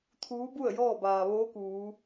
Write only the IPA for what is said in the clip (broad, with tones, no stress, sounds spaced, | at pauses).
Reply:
t̪ʰ uː˧˥ b u˥˨ ə̯ j ɔː˥˨ b aː˩ ʋ oː˧˥ k uː˩˧